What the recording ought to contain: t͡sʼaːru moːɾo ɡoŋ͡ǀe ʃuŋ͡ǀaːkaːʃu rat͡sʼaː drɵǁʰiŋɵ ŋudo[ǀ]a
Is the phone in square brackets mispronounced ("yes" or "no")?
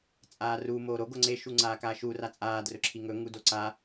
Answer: no